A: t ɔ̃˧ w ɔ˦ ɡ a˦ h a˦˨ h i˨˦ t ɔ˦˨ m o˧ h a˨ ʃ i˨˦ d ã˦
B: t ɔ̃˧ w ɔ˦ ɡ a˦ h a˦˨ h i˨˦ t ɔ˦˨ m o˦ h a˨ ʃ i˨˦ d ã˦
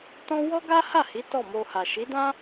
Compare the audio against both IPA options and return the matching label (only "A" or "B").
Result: A